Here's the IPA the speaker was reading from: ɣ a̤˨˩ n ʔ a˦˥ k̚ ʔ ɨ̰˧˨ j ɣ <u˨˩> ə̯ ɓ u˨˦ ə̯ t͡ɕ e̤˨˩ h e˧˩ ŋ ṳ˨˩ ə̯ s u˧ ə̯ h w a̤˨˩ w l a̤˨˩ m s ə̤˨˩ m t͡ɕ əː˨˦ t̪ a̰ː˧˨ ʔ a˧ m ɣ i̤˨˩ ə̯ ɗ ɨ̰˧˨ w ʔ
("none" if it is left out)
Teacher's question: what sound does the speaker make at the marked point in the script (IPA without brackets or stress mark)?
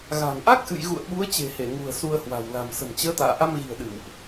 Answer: ṵ˧˨